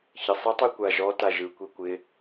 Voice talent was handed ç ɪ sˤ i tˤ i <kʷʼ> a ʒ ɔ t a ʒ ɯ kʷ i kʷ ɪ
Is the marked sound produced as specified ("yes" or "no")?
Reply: no